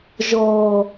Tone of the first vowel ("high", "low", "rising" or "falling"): low